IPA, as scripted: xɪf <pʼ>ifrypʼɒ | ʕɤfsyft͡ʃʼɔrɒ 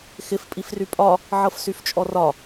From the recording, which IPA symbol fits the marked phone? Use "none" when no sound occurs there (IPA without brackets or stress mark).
pʼ